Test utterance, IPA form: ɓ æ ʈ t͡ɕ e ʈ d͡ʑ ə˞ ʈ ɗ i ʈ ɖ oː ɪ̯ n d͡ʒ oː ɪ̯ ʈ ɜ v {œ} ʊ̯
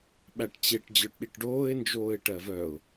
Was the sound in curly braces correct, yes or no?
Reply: yes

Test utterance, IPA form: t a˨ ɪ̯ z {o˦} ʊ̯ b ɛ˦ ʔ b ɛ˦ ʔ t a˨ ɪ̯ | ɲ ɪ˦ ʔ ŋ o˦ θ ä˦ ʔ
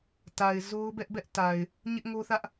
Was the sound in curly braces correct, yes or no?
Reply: yes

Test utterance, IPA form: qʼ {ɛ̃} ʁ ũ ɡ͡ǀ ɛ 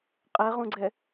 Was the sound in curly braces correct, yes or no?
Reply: no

